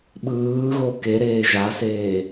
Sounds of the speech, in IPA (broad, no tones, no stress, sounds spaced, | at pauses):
ɓ ɯː ɣ o k e ɾ eː ʒ a s eː